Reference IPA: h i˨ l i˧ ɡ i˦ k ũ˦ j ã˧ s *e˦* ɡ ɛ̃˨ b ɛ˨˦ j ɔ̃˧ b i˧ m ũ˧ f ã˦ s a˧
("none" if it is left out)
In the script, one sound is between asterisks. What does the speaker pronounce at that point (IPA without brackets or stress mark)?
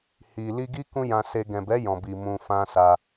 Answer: e˧